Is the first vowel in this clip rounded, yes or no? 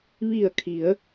no